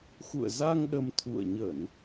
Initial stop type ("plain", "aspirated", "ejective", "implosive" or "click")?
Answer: implosive